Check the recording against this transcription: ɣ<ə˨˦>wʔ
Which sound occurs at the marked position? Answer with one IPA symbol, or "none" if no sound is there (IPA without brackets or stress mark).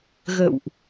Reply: ə̰˧˨